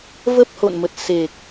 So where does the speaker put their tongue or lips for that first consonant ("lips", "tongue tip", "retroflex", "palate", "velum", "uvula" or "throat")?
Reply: lips